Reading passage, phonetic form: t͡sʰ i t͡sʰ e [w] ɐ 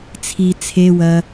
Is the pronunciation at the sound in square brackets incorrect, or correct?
correct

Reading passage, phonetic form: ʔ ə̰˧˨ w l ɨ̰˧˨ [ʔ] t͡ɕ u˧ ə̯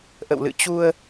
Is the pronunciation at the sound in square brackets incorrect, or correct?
incorrect: none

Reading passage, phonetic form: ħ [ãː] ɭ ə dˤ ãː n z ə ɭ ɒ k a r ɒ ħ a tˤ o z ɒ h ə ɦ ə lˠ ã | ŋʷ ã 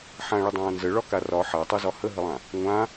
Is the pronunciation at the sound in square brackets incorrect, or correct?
incorrect: ã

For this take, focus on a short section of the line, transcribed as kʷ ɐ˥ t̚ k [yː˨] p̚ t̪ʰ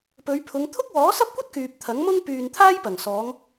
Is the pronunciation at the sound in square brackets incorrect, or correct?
correct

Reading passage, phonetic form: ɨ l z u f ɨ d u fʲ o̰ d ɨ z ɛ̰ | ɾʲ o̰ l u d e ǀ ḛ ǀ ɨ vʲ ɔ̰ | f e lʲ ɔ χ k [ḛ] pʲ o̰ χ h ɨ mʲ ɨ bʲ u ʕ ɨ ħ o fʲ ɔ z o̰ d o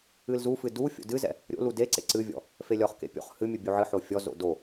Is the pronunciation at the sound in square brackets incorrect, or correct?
correct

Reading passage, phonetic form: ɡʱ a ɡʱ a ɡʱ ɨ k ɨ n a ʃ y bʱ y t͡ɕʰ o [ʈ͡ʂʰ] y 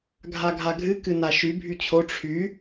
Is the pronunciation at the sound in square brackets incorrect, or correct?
correct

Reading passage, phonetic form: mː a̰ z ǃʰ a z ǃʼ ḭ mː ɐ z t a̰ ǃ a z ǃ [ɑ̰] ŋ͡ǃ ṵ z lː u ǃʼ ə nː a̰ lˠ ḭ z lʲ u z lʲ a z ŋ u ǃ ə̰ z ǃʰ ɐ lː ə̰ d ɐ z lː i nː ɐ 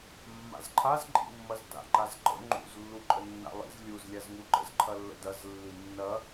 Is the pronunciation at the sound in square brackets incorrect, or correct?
incorrect: ə̰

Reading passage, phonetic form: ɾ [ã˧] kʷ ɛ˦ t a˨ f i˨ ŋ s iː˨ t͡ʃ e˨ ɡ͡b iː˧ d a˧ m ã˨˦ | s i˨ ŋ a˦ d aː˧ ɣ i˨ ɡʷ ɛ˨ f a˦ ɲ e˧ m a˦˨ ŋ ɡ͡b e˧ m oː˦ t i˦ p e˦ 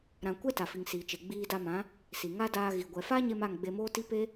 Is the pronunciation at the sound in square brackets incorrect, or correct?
correct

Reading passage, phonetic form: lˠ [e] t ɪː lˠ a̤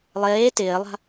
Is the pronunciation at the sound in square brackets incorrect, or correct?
incorrect: eː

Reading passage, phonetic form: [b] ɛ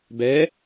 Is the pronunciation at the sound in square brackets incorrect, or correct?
correct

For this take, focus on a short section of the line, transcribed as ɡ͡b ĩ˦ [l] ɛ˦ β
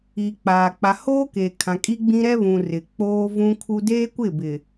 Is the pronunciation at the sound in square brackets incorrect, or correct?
incorrect: ɾ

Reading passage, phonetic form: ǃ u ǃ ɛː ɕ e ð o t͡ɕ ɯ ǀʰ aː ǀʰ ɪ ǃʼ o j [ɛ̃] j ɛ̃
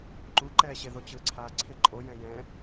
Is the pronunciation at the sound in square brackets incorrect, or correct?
correct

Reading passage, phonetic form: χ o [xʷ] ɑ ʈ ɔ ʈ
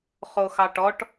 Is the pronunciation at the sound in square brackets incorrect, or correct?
incorrect: x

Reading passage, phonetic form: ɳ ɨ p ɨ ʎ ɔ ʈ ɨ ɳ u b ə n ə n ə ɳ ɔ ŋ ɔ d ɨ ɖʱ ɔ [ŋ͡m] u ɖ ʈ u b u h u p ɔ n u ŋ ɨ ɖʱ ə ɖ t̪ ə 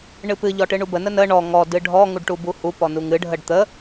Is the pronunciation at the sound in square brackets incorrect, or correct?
incorrect: ŋ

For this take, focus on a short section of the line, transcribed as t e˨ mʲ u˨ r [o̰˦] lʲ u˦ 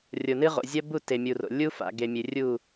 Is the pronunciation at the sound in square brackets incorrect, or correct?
incorrect: o̰˨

